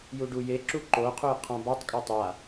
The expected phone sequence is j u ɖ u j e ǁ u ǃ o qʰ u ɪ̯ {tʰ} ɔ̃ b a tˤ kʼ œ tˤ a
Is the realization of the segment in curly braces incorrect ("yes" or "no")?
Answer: yes